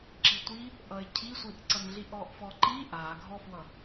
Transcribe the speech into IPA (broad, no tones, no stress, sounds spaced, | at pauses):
ǁ i tʷ i | ʔ ʌ ɪ̯ cʰ i sʷ i ʔ ǀ ʌ n ɮ i ʔ ɔ ʔ f ɔ ǃ i ʔ a ɡʱ ɔ f w ʌ